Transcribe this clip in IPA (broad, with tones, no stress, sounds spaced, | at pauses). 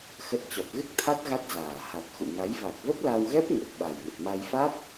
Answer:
x ə˦˥ t̚ t͡ɕ ɔ˨˩ p̚ ɣ ɨ˦˥ k̚ t̪ʰ a˦˥ t̚ ɣ a˦˥ t̚ z aː˨˩ h a˨˩ t̚ x ṵ˧˨ ŋ a˨˦ j v a˨˩ k̚ v ə˦˥ p̚ l a˧ w ɣ ɛ˦˥ p̚ ŋ ə˨˩ p̚ ɓ a˨˩ j ŋ ə˨˩ t̚ m a˧ j f a˦˥ t̚